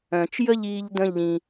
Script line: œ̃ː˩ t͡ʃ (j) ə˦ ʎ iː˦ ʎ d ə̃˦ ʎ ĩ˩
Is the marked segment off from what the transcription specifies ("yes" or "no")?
no